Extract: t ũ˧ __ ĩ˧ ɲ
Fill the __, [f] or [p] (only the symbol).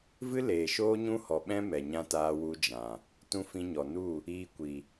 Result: f